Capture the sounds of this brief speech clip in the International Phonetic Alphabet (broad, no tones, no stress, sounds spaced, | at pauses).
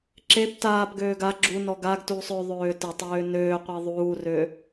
ǁ e p t aː p ɡ øː ɡ a ɡ͡ǁ u n ɔ ɡ a ɡ t uː sˤ ø ðˤ øː t ə tˤ øː n øː qʷ e ðˤ uː r ø